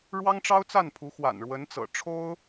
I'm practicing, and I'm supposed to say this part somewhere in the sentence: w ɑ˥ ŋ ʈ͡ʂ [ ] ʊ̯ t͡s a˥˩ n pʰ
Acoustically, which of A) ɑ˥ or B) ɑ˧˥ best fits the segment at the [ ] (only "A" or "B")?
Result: A